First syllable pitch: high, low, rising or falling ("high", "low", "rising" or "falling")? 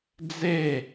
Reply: falling